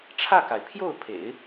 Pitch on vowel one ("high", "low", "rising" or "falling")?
falling